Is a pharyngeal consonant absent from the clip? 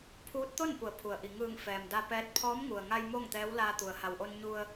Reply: yes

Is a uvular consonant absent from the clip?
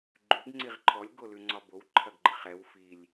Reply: no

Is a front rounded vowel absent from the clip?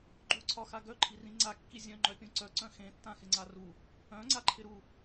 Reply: no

